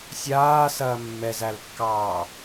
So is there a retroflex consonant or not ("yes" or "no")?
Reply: no